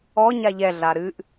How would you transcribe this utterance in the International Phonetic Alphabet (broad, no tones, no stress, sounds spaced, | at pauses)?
ɔ ɲ a ʎ ɛ ɮ a ɾ ɨ ʔ